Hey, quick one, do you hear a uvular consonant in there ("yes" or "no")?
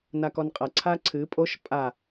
yes